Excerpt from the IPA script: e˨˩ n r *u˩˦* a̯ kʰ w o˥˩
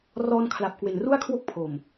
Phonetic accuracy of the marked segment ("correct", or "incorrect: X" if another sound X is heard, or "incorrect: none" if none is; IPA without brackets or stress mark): incorrect: u˥˩